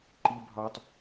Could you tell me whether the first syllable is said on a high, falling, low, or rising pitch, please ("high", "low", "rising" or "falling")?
high